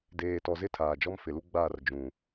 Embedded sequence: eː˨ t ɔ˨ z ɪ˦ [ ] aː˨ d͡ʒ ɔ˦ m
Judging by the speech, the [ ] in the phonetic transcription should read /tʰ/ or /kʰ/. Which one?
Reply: tʰ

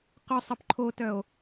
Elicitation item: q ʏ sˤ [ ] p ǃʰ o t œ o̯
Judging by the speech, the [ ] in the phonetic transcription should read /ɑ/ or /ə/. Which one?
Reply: ə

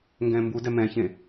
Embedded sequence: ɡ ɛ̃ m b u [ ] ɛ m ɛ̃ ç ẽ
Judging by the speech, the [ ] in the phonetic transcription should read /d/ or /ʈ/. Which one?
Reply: d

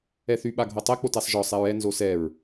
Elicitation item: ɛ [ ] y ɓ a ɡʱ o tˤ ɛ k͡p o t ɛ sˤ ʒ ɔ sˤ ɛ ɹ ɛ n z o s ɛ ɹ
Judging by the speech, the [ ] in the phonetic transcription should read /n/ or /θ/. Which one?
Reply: θ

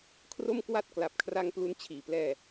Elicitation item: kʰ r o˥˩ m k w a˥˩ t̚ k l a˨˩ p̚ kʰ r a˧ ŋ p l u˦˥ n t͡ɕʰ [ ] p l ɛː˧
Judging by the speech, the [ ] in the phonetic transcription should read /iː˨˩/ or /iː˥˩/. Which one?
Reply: iː˨˩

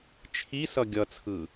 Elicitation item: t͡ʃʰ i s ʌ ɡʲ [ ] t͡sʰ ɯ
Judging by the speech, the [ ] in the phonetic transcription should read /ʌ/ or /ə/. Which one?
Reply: ʌ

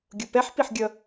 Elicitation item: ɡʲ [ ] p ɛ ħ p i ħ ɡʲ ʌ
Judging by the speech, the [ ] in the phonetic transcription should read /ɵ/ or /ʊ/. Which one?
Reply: ʊ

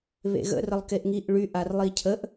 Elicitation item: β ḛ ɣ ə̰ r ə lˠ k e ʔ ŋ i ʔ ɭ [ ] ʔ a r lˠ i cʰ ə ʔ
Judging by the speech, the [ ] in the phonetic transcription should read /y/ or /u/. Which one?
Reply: y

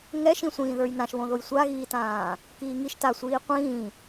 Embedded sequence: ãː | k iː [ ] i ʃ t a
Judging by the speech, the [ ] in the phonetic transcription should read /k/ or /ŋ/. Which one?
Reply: ŋ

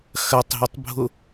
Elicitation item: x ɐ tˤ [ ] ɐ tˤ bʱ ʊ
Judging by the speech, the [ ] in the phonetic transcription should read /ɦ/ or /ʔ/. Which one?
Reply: ɦ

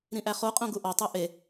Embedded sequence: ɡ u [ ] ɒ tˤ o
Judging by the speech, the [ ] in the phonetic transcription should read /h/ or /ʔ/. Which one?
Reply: ʔ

